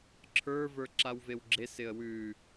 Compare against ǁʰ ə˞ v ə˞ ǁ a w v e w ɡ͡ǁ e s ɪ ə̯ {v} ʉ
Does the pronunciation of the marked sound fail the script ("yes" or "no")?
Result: yes